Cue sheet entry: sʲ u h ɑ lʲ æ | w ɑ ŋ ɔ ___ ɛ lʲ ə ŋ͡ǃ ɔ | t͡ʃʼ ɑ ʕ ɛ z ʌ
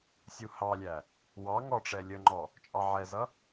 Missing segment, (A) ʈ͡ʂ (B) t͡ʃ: A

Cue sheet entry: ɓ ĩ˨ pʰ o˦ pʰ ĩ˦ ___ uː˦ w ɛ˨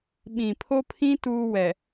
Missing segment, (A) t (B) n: A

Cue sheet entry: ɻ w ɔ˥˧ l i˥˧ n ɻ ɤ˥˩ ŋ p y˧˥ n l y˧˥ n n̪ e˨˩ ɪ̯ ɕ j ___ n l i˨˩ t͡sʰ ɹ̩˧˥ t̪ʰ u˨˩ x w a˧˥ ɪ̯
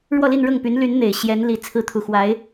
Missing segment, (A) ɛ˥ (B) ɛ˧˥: B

